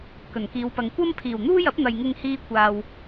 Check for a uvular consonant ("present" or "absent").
absent